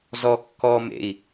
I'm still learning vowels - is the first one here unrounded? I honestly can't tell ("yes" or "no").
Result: no